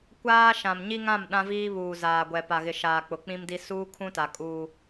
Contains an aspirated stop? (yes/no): yes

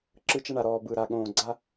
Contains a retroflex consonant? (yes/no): yes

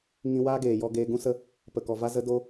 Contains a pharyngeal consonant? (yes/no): no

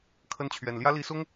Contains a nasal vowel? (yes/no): no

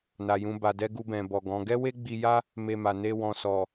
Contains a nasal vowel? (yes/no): yes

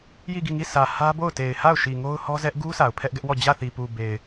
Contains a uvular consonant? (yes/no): no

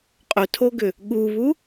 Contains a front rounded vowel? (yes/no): yes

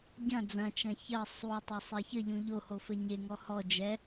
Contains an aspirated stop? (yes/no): no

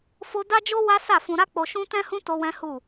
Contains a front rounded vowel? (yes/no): no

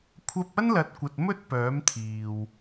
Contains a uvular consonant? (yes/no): no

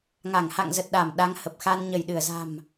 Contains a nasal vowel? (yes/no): no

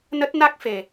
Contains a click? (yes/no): no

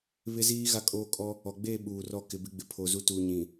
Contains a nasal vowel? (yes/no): yes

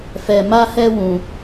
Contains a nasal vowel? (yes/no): yes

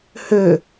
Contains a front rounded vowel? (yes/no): yes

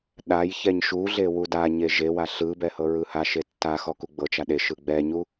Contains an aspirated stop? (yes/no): no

